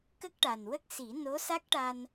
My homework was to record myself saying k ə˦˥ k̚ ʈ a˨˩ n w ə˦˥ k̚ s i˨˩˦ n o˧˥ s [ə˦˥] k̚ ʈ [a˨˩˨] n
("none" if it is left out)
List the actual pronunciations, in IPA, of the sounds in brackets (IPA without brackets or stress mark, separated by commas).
a˦˥, a˧